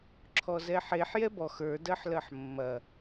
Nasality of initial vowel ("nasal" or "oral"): oral